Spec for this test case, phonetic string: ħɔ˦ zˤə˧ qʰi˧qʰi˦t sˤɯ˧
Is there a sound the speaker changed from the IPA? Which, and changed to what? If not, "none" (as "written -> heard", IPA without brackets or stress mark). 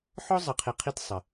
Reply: ɯ˧ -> ə˧